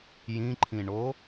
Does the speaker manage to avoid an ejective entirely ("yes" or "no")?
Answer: yes